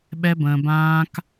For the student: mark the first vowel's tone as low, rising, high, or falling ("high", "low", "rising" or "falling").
high